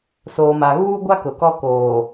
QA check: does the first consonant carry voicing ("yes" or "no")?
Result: no